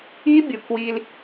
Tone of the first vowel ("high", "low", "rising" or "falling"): high